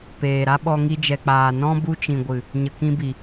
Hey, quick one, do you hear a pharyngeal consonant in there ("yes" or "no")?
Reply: no